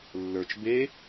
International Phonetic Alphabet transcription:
lː ə˞ t͡ʃ b e

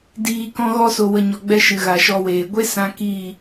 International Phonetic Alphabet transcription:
d iː˨ k ɔ̃˧ ɣ ɔ˧ s o˨ w ə˨ ɲ ɔ˨ ɡ͡b ɛ˧ ʃ ɨ˨ ɣ a˨ ʃ ɔ˧ w eː˨ ɡʷ e˦ s ã˧ k iː˦˨

